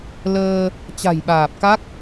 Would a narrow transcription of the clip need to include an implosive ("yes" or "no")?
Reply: yes